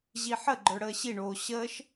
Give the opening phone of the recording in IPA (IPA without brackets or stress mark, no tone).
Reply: ʑ